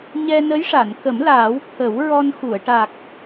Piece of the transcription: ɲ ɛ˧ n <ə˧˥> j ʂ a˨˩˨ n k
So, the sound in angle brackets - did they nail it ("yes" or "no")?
yes